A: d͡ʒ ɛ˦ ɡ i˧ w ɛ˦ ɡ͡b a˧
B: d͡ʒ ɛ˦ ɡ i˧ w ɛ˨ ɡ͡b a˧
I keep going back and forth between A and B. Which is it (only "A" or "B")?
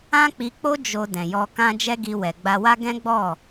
B